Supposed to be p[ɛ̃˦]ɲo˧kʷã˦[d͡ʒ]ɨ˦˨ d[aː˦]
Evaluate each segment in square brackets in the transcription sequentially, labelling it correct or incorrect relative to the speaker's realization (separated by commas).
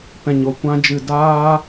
incorrect, correct, correct